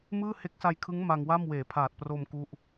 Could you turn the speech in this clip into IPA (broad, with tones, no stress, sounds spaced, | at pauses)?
m ɯː˥˩ h e˦˥ k̚ s a˧ j kʰ ɯ˦˥ ŋ m a˧ ŋ w a˥˩ m w eː˩˦ pʰ aː˨˩ t̚ p r o˧ m k u˥˩ ʔ